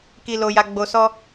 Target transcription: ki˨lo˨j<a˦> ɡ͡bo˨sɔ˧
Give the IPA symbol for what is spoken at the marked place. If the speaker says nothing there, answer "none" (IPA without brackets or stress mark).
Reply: a˨